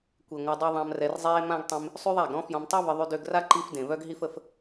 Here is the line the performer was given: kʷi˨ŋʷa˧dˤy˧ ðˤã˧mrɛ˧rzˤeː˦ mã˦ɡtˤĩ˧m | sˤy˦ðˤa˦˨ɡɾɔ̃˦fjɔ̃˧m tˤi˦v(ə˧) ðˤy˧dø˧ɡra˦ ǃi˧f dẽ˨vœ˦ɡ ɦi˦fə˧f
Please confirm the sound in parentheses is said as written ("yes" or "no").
yes